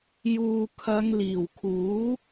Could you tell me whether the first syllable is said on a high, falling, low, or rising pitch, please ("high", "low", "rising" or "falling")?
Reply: low